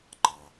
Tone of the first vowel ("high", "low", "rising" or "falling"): low